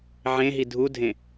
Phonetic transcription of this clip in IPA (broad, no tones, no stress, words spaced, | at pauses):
ʕẽɦi dʱudʱẽ